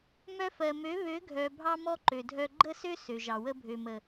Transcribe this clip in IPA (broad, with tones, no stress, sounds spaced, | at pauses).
m œ˧ f ɜ˨ m ø˨˦ β ø˨˦ ɡʱ œ˨ bʱ ɑ˦ m ɔ˦ ǃ ø˨ dʱ œ˧ ɡ͡ǃ ə˦˨ s ø˦ s ø˨ ʒ ɑ˨ w ə˧ bʱ ø˨ m ə˨